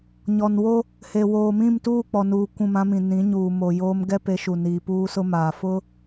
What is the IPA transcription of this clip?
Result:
ɲɔ˨nwo˦ | he˨woː˨mĩ˦˨m tuː˦˨k͡pɔ˨nuː˨ kʷũ˦˨mã˦mĩ˨ nĩ˨˦ɲuː˨ mo˨joː˦m ɡɛ˦pe˨˦ʃu˨ niː˨puː˦sʊ˦maː˨ fʊ˦

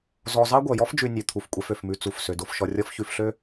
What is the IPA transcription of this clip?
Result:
zɔ˨ zɑ˥ɡʷœ˩jɔ˥fd͡ʒʉ˨ nʲø˩ t̪ʰu˩f kʷʼɛ˨fø˩fmʉ˨ t͡su˩f sø˩do˨fʃɔ˨rʲɔ˦f çʉ˨fɬø˦

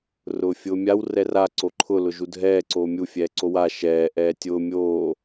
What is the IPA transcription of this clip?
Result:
rʊːfʲʊːmʲaw rɛra ǀoǃʰʊ lʊʒudʱɛː ǀoːmʲu fʲɛːǀowa ʃɛː ʔɛːtʲʊː mʲoː

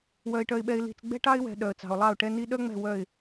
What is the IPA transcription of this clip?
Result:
wœ˨ɪ̯ʈœ˨ɪ̯ɓɛ˨ɪ̯ li̤˨t͡sɡ͡bɛ̤˦ʈɑ˦ɪ̯wɛ̤˨ ɗœ˨ə̯t͡sɑ̤˨ʊ̯lˠɑ˦˨ʊ̯ ʈɛ˦ni˦ ɗœ˦ŋ͡mɛ̤˦˨ wœ˦˨ɪ̯

